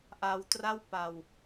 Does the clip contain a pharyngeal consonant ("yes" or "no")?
no